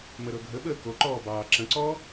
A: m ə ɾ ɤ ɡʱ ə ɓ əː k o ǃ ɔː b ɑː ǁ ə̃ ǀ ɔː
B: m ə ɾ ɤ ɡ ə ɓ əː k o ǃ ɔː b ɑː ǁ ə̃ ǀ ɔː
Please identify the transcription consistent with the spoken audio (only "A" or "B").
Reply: A